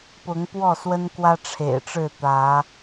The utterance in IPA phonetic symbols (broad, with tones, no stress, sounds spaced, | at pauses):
p ʊ˨˦ ŋ p w ɔ˥˨ s w ə˦ n k w ä˦ ʈ͡ʂʰ ḛ˨˩ ɪ̯ ʈ͡ʂ ɻ̩˥˨ t̪ ä˨˦